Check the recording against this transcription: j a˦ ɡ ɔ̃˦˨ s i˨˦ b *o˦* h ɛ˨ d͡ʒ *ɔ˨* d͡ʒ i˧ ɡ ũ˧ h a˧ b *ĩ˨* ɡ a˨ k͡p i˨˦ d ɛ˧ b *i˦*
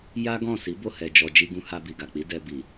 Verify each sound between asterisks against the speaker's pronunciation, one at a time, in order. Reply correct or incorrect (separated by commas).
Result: incorrect, correct, incorrect, incorrect